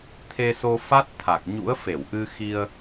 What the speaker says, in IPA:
t̪ʰ e˧ s o˧ f a˦˥ t̚ t̪ʰ a˨˩ k̚ ɲ ṵ˧˥ ə̯ f e˧˩ w ʔ ɨ˧ x i˧ ə̯

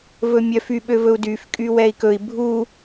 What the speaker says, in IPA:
v ɵ mʲ œ f y ɓ ø v ɵ u̯ d y f kʼ y w ɛ i̯ k ɵ i̯ bʱ u

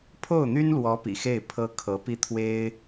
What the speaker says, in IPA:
pʰ o˥˩ ʊ̯ n̪ y˥ n l w ɔ˧˥ p ḭ˨˩ x e˥˩ ɪ̯ pʰ ɤ˥ kʰ ɤ˧˥ p i˥ t̪ʰ w e˥ ɪ̯

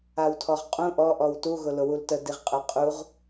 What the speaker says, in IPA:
a w tʰ ɔ ʁ qʼ ũ ʔ ɔ ʔ ɔ w t u ɣ ʊ l ʊ w u l t ə d i ʁ qʼ ə qʼ u ʁ

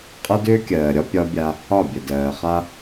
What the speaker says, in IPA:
qʼ ʌ˦ d ʏː˦ kʲ ɜː˨ ɾʲ ɒ˦ pʲ ɒ˦ bʲ a˦ | ɒ˦˨ bʲ ə˨ d ɜː˨ χ a˦

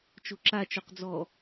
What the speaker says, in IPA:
t͡ʃ o ǁ a t͡ʃ o q d͡z ɔ

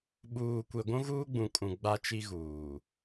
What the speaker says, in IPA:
ɓ uː˨ kʷ e˨ ɡʷ ũ˦ ɣ uː˦ ɡ͡b ũ˨ kʼ ũ˨ ɡ͡b a˦ t͡ʃ i˦ ɣ uː˨

